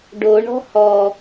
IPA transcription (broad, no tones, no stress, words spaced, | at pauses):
ɖo ɳɔ̤hɔ